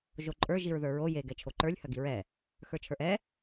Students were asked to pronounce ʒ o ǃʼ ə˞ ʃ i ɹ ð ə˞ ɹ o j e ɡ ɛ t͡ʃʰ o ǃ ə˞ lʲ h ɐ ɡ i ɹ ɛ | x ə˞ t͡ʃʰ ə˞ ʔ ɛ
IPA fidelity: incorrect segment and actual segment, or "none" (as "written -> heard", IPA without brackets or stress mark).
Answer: ʃ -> ʒ